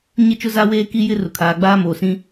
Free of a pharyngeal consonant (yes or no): yes